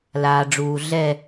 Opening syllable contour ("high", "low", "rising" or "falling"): low